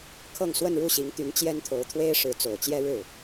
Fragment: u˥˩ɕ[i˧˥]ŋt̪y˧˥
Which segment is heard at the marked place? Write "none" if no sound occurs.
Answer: i˧˥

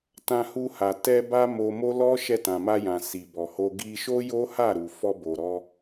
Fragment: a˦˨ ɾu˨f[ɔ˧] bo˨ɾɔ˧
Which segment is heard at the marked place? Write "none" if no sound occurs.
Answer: ɔ˧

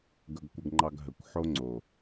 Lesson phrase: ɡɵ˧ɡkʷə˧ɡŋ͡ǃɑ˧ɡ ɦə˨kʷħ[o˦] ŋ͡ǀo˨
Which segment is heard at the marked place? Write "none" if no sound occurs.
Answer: o˦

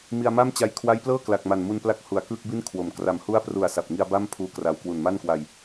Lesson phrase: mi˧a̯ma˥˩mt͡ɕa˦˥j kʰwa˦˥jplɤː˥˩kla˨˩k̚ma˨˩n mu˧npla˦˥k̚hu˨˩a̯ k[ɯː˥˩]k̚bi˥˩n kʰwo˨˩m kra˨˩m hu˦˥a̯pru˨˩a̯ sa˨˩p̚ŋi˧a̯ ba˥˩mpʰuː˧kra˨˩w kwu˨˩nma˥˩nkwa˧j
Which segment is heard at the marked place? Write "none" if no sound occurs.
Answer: ɯː˥˩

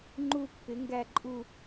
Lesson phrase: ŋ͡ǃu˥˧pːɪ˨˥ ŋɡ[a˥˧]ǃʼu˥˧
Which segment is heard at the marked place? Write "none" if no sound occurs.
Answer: æ˥˧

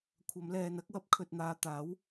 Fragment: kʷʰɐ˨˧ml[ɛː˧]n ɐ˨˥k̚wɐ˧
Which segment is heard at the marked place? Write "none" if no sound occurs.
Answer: ɛː˨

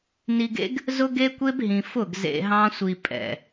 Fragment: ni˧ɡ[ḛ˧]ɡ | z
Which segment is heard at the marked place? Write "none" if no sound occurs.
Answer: ḛ˦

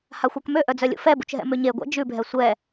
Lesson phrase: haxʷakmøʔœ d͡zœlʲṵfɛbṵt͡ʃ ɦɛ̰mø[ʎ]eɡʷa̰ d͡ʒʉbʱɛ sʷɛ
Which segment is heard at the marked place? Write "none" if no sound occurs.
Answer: ɲ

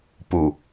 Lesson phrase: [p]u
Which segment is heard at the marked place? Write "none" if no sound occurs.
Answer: p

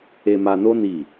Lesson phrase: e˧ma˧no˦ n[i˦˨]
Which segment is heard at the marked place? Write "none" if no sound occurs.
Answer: i˦˨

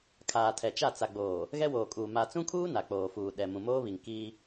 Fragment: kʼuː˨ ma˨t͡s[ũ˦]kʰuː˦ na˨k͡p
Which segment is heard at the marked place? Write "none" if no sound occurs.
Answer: ũ˦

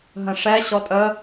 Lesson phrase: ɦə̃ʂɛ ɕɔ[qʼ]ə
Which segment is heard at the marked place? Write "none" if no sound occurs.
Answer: tʼ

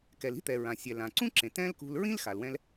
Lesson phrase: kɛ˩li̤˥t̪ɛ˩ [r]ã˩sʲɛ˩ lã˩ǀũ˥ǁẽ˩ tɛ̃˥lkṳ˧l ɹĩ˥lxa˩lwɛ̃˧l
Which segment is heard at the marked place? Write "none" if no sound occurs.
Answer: ɹ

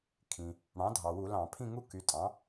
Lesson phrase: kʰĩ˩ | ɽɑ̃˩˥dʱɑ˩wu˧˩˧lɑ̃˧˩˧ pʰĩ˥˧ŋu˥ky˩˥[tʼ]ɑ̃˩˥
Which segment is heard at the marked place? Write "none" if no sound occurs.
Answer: tʼ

